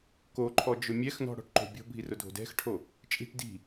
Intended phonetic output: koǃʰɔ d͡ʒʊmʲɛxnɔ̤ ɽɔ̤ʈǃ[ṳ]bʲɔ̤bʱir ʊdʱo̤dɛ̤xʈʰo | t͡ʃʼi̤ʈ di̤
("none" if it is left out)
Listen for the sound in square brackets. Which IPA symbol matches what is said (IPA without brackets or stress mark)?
o̤